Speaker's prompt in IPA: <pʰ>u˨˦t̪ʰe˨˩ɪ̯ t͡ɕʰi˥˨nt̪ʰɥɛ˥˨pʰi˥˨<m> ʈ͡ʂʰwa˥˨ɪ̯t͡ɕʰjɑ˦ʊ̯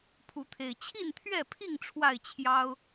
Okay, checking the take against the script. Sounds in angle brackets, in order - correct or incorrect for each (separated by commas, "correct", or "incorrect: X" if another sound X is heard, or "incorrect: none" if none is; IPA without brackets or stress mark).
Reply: correct, incorrect: ŋ